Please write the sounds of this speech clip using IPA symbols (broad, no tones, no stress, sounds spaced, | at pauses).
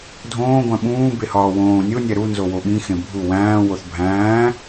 dʱ õː ɡʷ æ̃ ɓ ũː b e h ɒː w õː nʲ o nʲ æ ɾ u n z o w o ɓ ĩ x ẽ bʱ u w æ̃ː w o θ bʱ æ̃ː